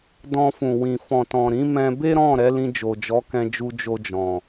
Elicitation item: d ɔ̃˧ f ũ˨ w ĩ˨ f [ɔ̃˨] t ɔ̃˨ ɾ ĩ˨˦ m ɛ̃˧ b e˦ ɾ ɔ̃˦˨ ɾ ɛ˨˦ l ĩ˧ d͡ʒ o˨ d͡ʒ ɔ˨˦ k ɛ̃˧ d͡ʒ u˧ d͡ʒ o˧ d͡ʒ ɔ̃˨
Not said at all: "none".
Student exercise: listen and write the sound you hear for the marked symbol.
ɔ̃˨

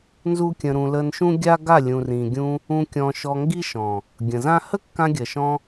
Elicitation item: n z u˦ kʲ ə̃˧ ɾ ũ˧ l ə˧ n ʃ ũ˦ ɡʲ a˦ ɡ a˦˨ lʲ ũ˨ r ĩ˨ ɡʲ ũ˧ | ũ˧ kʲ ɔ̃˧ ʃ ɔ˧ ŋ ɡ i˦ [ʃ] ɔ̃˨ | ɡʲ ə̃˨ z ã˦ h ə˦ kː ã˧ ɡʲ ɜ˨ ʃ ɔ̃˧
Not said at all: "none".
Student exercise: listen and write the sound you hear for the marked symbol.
ʃ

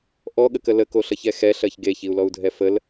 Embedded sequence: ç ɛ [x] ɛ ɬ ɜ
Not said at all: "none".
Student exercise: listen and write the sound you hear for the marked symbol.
x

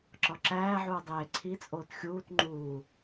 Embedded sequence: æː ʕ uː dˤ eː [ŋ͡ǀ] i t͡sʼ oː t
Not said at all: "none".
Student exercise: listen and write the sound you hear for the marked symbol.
ǀʰ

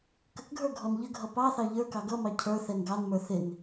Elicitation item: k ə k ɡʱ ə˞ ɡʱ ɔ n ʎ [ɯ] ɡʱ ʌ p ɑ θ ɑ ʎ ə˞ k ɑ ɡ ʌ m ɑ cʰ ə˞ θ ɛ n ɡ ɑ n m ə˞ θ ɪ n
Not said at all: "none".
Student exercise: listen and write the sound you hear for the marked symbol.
ə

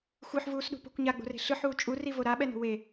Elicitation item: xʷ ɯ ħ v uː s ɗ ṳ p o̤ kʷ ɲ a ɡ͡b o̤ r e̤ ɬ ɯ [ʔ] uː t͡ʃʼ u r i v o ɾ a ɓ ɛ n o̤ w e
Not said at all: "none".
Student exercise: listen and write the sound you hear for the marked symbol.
ħ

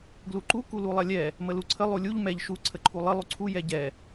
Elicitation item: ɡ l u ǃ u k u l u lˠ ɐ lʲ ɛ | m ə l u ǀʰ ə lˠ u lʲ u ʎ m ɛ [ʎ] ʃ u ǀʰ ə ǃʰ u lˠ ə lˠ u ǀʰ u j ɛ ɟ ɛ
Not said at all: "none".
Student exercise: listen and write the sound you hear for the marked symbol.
ʎ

